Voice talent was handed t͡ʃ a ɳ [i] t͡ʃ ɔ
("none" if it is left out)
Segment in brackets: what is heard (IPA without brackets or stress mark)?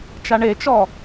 e